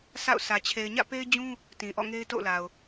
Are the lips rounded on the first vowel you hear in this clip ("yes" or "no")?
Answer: no